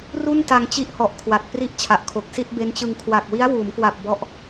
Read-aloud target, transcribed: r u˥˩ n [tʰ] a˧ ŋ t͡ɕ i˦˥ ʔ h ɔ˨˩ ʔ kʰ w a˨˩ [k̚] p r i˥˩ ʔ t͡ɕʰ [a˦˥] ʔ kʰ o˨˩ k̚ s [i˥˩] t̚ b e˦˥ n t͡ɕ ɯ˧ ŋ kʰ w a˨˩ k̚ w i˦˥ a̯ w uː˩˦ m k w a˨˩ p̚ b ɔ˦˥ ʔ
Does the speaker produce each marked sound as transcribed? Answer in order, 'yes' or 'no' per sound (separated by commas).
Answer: no, no, no, yes